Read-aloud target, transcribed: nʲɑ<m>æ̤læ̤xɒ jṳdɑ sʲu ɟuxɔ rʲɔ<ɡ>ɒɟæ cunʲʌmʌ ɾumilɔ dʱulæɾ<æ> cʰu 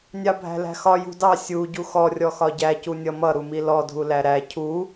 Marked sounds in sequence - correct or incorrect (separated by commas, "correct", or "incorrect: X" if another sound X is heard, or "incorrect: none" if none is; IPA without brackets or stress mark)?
incorrect: bʱ, incorrect: x, correct